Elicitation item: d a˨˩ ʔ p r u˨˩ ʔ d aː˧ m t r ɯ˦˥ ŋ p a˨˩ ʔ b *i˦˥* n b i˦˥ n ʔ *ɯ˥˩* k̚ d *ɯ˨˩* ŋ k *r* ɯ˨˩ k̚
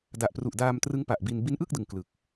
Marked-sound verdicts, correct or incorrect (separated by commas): incorrect, correct, correct, incorrect